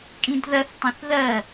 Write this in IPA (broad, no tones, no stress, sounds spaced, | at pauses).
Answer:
kʼ ĩ d ð ɐ θ tˤ ɐ̃ θ ð ɐ